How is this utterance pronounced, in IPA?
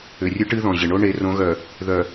ʏ˨ rʲ ɨ˦ ʈ ɨ˦ ð ɔ̃˨ ʑ ɪ˨ ɳ o˦ ɳ e˨˦ r õ˨˦ ɣ œ˨ | ð œ˨

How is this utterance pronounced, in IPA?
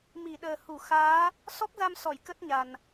m i˧˩ ɗ əː˨˩ h u˧˩ x aː˨˦ | s ɔ˦˥ k̚ z a˧ m s ɔ˧˩ j k ə˦˥ t̚ ɲ a˨˩ n

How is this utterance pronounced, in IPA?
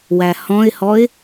w æ h ɔ̃ ɪ̯ h ɔ ɪ̯

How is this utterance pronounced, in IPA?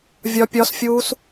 vʲ ɒ pʲ ɒ s fʲ uː s

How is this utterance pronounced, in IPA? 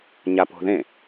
ɲ a p o̤ ð ẽ

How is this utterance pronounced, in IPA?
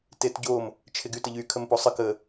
t e t ɟ o m | t͡ʃʰ ɪ ɡ y t ə ʎ y kʰ ə m p o sˤ ə k ə

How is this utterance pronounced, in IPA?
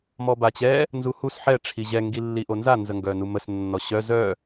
m ɔ b a t͡ɕ ɛ | n z u h u s ħ ɛ ʈ͡ʂʰ i ʑ ɛ ŋ ɡ i lː i ʔ o n z a n z ə ŋ ɡ œ n u m ə s nː ɔ ɕ œ z œ

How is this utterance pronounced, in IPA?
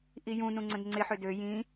ʔ i j ũ n ũ ŋ͡ǀ ə̃ d ŋ͡ǀ ɪ ħ ø d ø j ĩ

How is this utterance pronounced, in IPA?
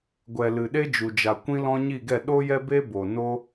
ɡʷ ɛ˨ l ɨ˨ ɗ e˦ d͡ʒ u˨ d͡ʒ a˨ kʷ ĩ˧ l ɔ̃˧ ɲ i˦˨ ɡ ɛ˦˨ ɗ o˦ j ɛ˦ b e˦ b o˨ n o˦

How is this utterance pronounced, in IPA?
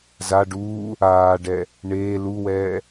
z a ɖ uː | aː ɖ ɛ | ɳ eː l u w ɛː

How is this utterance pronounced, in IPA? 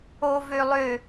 o v ø lˠ ø

